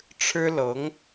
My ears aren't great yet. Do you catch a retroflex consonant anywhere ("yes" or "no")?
yes